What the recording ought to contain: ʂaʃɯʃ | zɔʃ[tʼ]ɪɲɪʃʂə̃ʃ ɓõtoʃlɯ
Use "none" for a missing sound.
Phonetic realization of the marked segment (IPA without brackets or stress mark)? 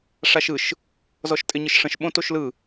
tʼ